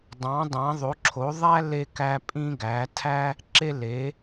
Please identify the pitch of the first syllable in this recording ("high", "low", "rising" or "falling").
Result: rising